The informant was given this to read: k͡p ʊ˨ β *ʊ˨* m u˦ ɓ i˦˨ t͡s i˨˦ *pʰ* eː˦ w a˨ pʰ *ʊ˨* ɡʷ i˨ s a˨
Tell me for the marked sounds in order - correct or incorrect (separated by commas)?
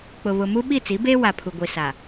correct, incorrect, incorrect